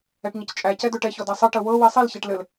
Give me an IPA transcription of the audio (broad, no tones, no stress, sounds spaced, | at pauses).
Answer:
ɛ ʈ ɲ ə c t͡ʃʼ æ c ɛ d ɵ ʈ ɛ ç ɔ d a sˤ ɘ ʈ ə w ɤ w i sˤ i l ç æ ʈ l ɘ l